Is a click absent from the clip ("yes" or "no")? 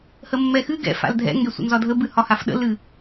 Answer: yes